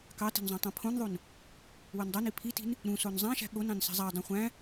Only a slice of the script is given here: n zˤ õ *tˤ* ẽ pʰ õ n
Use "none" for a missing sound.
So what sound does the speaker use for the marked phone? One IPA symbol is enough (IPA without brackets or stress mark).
tˤ